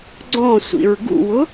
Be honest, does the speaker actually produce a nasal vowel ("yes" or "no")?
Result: yes